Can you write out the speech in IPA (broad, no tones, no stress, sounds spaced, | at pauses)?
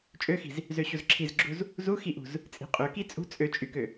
t͡ʃʼ ø x i̤ z | z ø ɕ u z ǁʰ i z ɡ͡ǁ u z | z u x i ʔ ṳ z | t͡sʼ i̤ qʼ ø k i t͡sʼ ṳ t͡sʼ ø t͡ʃʼ y k ø